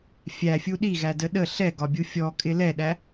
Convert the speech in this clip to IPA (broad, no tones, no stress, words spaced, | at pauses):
fʲæfʲu ɗiɣædə ɗə ɬɛɡɒbʲu fʲɔkʼɪ lɛɗæ